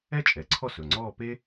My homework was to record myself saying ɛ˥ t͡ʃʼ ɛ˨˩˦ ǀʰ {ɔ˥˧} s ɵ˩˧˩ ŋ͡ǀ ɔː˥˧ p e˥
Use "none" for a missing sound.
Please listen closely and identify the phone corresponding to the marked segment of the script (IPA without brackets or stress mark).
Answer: ɔ˥˧